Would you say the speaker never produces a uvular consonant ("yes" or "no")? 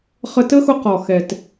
no